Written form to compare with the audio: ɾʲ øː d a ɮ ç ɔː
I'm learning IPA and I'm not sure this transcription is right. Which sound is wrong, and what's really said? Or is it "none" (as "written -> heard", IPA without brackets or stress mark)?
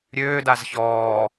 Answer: ɮ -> z